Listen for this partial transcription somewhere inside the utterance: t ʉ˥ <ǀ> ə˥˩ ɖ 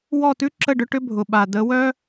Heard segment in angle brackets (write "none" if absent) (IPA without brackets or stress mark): ǁ